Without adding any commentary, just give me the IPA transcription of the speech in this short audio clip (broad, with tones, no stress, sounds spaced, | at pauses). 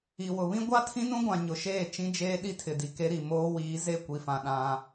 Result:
i˨ w ʊ˨ β ĩ˦ ɡʷ a˦ tʰ ĩ˦ n ũ˦ ɡʷ ã˨ ɲ ʊ˨ ʃ eː˦˨ t͡ʃ ĩ˦ d͡ʒ eː˦ ɗ i˦ tʰ ɪ˨ d i˨ k e˦ ɾ i˨ m oː˦ w iː˨˦ z e˦˨ kʷ i˨ f ã˨ ɗ ã˦